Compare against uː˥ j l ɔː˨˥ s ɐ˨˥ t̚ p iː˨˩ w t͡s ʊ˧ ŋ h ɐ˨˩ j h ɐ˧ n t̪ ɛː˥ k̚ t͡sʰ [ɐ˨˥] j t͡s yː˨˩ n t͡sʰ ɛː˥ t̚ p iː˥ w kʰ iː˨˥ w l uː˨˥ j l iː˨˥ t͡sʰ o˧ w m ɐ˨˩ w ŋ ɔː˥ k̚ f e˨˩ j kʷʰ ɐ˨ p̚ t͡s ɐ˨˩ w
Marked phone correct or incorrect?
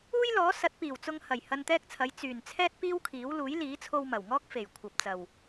correct